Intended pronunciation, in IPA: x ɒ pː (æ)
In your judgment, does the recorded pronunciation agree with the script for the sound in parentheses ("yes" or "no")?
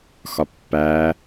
yes